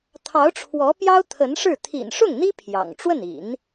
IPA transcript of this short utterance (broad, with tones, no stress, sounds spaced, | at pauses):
t̪ʰ ɑ˧˥ ʊ̯ ʈ͡ʂʰ w ɔ˧˥ p j ɑ˥ ʊ̯ t̪ʰ ə˧˥ n ʂ ɻ̩˥˩ t̪ʰ ḭ˨˩ n ʂ ʊ˥˩ ŋ n̪ i˥ pʰ j ɑ̰˨˩ ŋ ʈ͡ʂ w ə˥˩ n ḭ˨˩˦ n